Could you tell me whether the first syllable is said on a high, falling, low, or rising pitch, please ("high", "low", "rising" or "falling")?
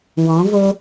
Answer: rising